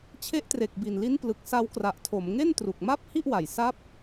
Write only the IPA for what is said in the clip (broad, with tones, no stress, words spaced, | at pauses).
t͡ɕʰe˦˥ʔtre˨˩k̚bi˨˩n li˦˥nplɯ˨˩k̚ sa˦˥wkra˨˩ʔtʰo˩˦m ŋe˥˩ntru˨˩k̚ ma˥˩p̚hi˥˩ʔ wa˨˩j sa˦˥p̚